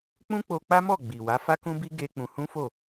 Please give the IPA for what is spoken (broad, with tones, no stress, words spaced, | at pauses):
k͡pũ˦k͡po˧k͡pa˦mɔ˦˨ ɡ͡bi˨wa˨˦ fa˦kũ˦bi˦ ɡe˦ k͡pũ˧ hũ˦fo˦˨